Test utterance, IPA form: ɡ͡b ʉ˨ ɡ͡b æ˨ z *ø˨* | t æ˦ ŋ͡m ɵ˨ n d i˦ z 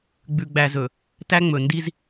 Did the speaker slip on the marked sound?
yes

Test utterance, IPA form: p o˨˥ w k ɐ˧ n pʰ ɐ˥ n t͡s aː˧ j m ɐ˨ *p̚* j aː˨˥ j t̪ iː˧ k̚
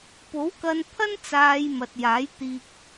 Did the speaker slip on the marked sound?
yes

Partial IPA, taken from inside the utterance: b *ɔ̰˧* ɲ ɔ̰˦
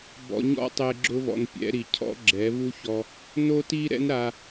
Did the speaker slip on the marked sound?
no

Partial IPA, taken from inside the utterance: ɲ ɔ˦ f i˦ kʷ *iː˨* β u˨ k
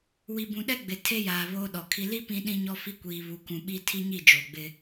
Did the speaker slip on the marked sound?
no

